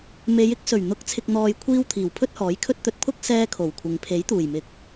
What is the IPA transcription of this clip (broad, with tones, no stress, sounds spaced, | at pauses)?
m e˨˧ j ɪ˥ k̚ s ɵ˨˩ ɥ n̪ ʊ˨˥ k̚ t͡sʰ ɪ˨ k̚ n̪ ɔː˨ j kʷʰ iː˧ w t̪ʰ iː˨˩ w pʰ ɵ˥ t̚ h ɔː˨˥ j kʰ ɵ˥ t̚ t̪ ɵ˧ t̚ pʰ ʊ˥ k̚ s ɛː˥ kʰ o˨˩ w kʷʰ ɪ˨ ŋ pʰ e˨˥ j t̪ uː˨˩ j m ɪ˨ k̚